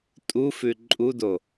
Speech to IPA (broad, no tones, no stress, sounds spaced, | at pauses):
tʼ u f ʉ ǃʼ u d o